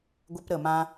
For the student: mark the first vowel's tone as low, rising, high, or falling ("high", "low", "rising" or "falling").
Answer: high